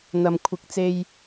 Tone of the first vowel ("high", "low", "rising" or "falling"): low